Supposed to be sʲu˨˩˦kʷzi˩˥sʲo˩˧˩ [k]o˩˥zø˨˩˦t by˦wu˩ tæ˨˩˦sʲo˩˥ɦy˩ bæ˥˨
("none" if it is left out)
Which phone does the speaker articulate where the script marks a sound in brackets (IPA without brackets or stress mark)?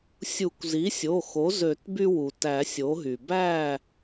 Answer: x